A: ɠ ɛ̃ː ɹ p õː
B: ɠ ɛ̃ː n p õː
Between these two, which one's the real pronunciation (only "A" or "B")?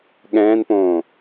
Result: B